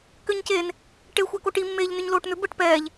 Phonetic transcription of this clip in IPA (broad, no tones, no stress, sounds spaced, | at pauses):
k ʏ ɲ c eː n | ʈ e xʷ ɛ k o ʈ i mː eː ʎ n ʏ ɲ l oː ʈ n̪ ʏ b ə ʈ p ɛː ʎ